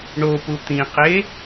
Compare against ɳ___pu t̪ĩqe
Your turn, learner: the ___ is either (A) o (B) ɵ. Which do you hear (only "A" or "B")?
A